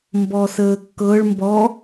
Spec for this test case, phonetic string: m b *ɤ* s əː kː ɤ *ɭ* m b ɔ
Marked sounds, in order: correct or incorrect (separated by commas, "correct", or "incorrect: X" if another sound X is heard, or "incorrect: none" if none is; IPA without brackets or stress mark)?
incorrect: ɔ, correct